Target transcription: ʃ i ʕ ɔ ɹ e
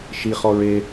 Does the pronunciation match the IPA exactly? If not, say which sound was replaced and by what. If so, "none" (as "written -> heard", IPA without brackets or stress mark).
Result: ʕ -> χ